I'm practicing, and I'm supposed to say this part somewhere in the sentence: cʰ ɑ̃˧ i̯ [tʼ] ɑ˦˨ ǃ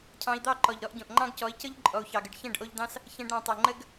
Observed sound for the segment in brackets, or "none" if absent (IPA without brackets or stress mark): d̪